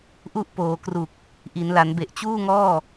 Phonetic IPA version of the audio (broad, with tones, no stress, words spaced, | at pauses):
ʔu˦˥ʔ poː˩˦kru˨˩k̚ | ʔi˩˦nla˩˦n be˨˩ʔt͡ɕuː˥˩ŋɔː˥˩